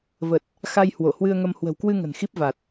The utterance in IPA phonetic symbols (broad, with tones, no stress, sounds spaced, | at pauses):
v ə˨˩ t̚ | x a˧ j h w o˧˩ h w ɨ˧ ə̯ ŋ ə˧ m h w ə̤˨˩ w k w ɨ˧ ŋ ə̤˨˩ n x i˦˥ p̚ v a˨˩ t̚